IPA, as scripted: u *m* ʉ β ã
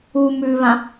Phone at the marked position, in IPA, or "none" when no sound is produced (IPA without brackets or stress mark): m